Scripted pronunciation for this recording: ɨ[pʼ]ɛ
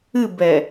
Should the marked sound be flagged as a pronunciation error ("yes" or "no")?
yes